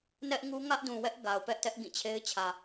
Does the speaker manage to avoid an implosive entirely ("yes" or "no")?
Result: yes